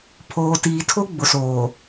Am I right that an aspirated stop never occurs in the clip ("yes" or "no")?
no